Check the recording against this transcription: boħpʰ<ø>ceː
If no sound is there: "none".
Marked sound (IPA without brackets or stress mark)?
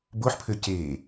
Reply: ø